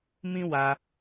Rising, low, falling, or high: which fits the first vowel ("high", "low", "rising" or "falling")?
high